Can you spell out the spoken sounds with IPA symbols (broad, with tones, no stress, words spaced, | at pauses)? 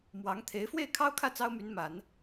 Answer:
mwɑ˧˥ŋt̪ʰe˧˥ɪ̯ fwe˥˩ɪ̯kʰɑ˥ʊ̯kʰä˥˩ t͡sɑ˥ʊ̯my˧˥nma˨˩˦n